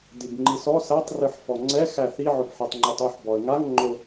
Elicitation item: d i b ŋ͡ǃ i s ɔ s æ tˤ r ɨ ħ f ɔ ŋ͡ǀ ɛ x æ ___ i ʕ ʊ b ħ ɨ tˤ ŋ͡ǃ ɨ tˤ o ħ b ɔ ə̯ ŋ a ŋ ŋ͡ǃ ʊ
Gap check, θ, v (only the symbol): θ